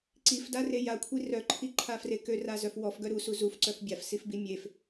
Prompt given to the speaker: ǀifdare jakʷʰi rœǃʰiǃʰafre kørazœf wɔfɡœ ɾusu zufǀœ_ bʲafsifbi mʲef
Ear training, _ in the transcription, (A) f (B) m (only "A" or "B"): A